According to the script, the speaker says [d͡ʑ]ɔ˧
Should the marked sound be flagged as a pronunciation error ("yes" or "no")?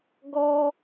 yes